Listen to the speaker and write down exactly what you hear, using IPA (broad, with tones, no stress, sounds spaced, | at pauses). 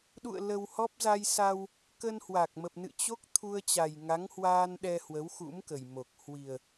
ɗ ṵ˧˨ ə̯ l ə˧ w h ɔ˦˥ p̚ z a˧ j s a˧ w | k ə˧ n h w a˨˩ k̚ m ə˨˩ p̚ n ɨ̰˧˨ t͡ɕ o˦˥ k̚ t̪ʰ u˧ ə̯ t͡ɕ a˨˩ j ŋ a˨˦ ŋ h w aː˧ n ɗ ɛ˧ h w ə˨˦ w x ṵ˧˥ m k ə˨˩ j m o˨˩ k̚ h w i˨˩ ə̯